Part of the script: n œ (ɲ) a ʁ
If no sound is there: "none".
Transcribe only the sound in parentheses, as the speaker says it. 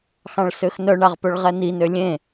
ɳ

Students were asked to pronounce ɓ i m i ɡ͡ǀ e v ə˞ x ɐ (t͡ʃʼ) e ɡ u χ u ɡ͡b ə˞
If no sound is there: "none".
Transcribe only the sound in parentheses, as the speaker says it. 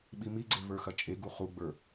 t͡ʃʼ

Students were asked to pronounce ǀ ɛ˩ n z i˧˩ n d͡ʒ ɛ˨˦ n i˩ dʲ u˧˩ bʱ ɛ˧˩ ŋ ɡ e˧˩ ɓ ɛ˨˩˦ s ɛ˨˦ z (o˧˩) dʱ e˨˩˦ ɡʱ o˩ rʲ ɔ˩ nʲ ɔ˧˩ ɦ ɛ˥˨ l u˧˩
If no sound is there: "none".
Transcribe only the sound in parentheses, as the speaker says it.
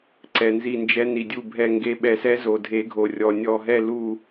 o˩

